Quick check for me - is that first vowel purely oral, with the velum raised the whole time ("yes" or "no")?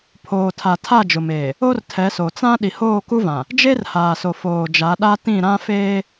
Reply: yes